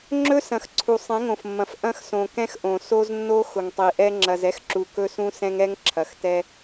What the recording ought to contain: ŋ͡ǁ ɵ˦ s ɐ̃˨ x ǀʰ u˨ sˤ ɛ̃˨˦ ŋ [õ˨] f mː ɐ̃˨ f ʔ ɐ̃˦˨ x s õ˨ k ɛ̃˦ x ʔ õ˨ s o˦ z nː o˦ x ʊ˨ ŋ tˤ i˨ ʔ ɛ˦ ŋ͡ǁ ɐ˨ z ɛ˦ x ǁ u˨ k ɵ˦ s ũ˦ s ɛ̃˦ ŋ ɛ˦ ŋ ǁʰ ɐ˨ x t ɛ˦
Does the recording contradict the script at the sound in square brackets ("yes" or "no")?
no